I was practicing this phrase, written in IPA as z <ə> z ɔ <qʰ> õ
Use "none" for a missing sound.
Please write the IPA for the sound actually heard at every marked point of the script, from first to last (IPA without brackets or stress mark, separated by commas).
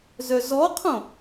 œ, qʰ